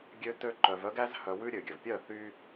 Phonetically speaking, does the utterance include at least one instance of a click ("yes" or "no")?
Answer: yes